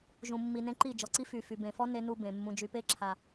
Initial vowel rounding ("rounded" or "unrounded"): rounded